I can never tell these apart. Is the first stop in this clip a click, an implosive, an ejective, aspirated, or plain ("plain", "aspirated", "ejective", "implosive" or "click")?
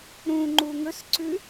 click